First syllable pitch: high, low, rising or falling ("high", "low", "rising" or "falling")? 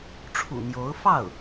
low